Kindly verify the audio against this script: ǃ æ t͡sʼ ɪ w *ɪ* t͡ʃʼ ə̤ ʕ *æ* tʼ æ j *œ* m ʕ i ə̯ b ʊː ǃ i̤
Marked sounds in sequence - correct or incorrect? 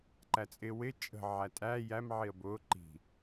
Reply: correct, correct, incorrect: æ

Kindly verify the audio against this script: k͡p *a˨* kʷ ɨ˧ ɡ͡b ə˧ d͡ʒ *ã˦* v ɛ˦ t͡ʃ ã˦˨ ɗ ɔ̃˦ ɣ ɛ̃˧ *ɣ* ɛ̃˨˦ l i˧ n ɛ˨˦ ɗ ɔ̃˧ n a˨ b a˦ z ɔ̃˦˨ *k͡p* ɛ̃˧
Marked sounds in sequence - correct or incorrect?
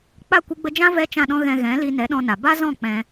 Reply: incorrect: a˦˨, correct, correct, correct

